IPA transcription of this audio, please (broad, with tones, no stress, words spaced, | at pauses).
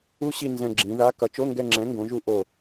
u˦˥ɕi˦˨ nzɛ̃˦˨ɡ͡ǁĩ˨˥ ða˧˥˧ kʌ˨˥t͡ʃo˧˥˧ŋɡɛ˦˨ŋ͡ǁɛ̃˨˥ ŋɡõ˨˥ʒu˦˥ ʔo˦˨